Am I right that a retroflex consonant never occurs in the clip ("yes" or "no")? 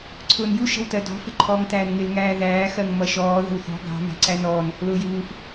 yes